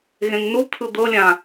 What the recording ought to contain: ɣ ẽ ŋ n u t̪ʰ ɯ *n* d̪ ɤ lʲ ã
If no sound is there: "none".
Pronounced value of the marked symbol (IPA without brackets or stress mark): none